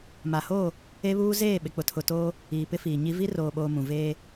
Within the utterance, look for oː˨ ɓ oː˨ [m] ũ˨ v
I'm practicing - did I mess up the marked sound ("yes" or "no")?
no